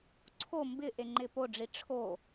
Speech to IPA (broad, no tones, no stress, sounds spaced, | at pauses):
ǀʰ o m b ɪ ʔ e ŋ͡ǃ ɪ p o ɖ͡ʐ i ʈ͡ʂʰ o